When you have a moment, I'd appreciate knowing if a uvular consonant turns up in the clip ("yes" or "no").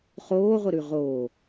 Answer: yes